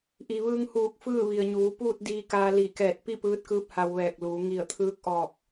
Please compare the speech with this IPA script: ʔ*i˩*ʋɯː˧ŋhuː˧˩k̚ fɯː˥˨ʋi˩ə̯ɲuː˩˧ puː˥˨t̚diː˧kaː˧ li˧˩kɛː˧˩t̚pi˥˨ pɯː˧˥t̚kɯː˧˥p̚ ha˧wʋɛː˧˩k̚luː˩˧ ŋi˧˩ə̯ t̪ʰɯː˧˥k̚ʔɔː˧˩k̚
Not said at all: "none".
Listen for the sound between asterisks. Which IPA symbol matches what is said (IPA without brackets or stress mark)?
i˩